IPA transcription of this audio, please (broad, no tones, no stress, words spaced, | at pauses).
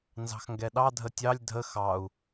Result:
nzɑ̤xŋɡɛɗɑ dʱətʲɑlʲ dʱə xɑu̯